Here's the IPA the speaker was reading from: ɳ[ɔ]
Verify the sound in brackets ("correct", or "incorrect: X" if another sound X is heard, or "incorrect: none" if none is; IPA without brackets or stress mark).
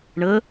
incorrect: ə